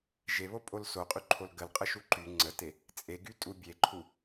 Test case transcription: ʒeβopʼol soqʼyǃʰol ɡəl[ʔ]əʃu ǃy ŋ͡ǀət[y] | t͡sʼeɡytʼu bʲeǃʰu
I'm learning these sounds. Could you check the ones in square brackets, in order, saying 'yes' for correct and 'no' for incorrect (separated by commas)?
no, no